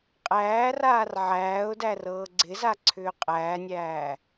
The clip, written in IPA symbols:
qʼ æː r aː r ʕ æː ʊ̯ d æ r ɤː ɡ͡ǀ ɪ z a ǀʰ ʏː qʼ æː nʲ æː

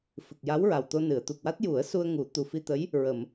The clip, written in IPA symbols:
f ɨ˨˩ k̚ j a˧˥ w ɹ a˨˩ w t̪ o˧ n ɨ˨˩˨ ə̯ t̪ u˨˩ k̚ w a˦˥ t̚ j u˨˩˦ ə̯ s u˧ ə̯ ŋ u˨˩˦ t̪ u˨˩ f i˧ t̪ ə˧˥ j | ɹ ə˨˩˨ m

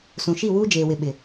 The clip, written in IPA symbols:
s ũ˨ ʃ i˦˨ w uː˦ d͡ʒ eː˨ w ɪ˨ ɓ ɪ˨

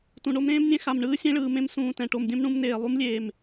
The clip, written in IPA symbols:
t ũ˨ ɳ o˦ m ɾ ẽː˦ m nʲ ɛ̃˦ x a˨ m ɳ ɯː˦ sʲ ẽ˦ ɭ ɯː˨ m ẽ˦ m s ũː˨ t ɛ̃˨ ʈ o˨ m dʲ õ˦ m ɳ ũ˦ m n eː˨ lˠ u˦ m lʲ eː˨ m

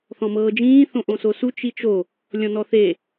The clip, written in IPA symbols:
θ ɔ̃ m ɤː d͡ʒ ĩː θ õ ʔ õ s o s u t͡ʃ i t͡ʃ o | lʲ ɔ̃ n ɔ θ e

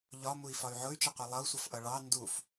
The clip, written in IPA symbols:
ʎ ɒ m u i̯ f ɒ y̯ ʕ ʊ y̯ t͡ʃ ʌ qʷ i lˠ ʌ u̯ sʷ ʌ f ʔ ʌ ɭ ɑ n d u f

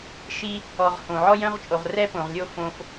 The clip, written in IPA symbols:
ʃ i˦ | ɔ˨ ʁ h õ˩ ʕ ɔ˥ j œ̃˥ ʁ t͡ʃʼ o˩ ʁ r ɛ˥ p õ˩ ʁ lʲ o˦ f õ˨ f

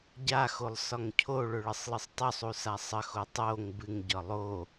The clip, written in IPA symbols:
ɟ a x o lˠ s ɒ ŋ cʰ o ɭ ɵ ɭ ə sˤ lˠ ɨ sˤ tˤ ɵ sˤ u s a sˤ ə x o tˤ o ŋ b ɨ ŋ ɟ ɒ lˠ o

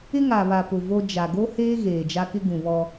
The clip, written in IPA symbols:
ɪ˦ ŋ a˨ β a˨ p ʊ˨ v o˦ d͡ʒ a˨ ɡ o˦ h eː˦ ɣ eː˨ d͡ʒ a˦ k ɪ˦ ɡ ũ˨ β ɔ˦

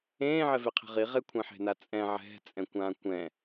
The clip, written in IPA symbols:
ẽː ʕ ɛ v e qʰ e̤ ʁ i ʁ e kʷʰ ẽ ħ e̤ n a t͡sʼ ɛ̃ ʕ ɛ̤ t͡sʼ ɛ̃ kʷ ãː kʷ ɛ̃

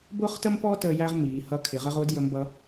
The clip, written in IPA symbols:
b ʊː˥ χ t ə˥ m p ɔ˥ t əː˧ j æ˥ ʁ m iː˩˧ h ʌ˥ kʰ ɪ˩˧ ʁ ə˥ ʁ ʊː˧˥ d j ə˧˥ m b ʌ˧˥

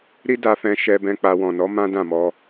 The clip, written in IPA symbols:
ɾ i˦ d a˧ f ɛ̃˧ ʃ ɛ˦ b ɛ̃˦ k͡p a˧ w ɔ̃˨ n ɔ˨˦ m ã˦ d ã˦˨ m ɔ˧

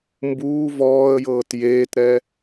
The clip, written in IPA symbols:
m b uː v ɔː ə̯ j ɤː t j eː t ɾ ɛ

